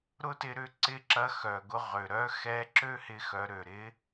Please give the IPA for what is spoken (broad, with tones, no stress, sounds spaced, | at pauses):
ɾ ʊ˥ t ɪ˧ ɾ ʏ˧˥ ǀ ɪ˧˥ ǁ ɐ˧˥ x œ˩ ɡ ʊ˧ ʁ ø˩ ɾ œ˧˥ x ɛ˧˥ ǁ ø˥ h ɪ˧ x œ˩˧ ɾ ø˩ ɾ ɪ˧˥